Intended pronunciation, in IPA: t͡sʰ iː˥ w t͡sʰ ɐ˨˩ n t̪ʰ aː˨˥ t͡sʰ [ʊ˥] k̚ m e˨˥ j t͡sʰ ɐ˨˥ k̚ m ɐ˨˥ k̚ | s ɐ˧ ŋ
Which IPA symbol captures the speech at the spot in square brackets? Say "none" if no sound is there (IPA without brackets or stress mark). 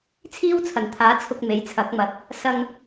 ʊ˧